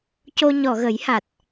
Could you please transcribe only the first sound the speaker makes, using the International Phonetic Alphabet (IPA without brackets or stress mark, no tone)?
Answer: c